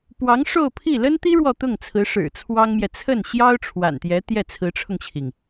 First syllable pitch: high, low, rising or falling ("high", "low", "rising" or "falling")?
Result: rising